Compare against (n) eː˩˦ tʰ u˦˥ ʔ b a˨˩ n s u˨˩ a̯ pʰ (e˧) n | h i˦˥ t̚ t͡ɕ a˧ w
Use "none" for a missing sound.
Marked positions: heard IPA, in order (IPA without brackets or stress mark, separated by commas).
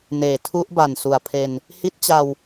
n, e˧